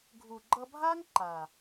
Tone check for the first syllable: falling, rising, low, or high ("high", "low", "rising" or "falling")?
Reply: low